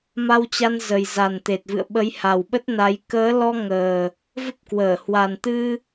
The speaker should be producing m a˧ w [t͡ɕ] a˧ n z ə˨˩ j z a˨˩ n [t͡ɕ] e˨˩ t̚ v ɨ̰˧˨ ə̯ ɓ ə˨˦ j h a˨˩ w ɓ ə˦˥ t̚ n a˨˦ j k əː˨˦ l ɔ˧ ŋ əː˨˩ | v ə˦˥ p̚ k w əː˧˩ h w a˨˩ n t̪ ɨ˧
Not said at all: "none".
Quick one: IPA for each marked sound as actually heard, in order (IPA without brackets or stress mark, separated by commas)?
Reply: t͡ɕ, t̪